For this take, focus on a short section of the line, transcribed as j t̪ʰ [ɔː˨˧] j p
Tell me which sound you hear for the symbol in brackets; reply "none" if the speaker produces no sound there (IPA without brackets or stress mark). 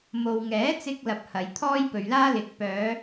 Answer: ɔː˥